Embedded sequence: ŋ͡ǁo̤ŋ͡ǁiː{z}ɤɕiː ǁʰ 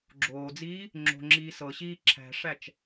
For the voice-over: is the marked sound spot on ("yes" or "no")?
no